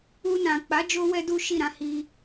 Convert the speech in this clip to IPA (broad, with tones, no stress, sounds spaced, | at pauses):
u˧ n ã˨ k͡p a˨˦ d͡ʒ o˦ w ɛ˦ d u˦ ʃ i˦˨ ɾ ã˧ h i˧